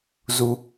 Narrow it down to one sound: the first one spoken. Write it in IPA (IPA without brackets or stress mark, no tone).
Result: z